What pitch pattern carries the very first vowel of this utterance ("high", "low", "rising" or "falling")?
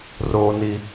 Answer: low